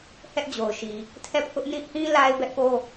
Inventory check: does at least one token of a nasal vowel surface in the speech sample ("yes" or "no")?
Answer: yes